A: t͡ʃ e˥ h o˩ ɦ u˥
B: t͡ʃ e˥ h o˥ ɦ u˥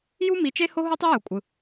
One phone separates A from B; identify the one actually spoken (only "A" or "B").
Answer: B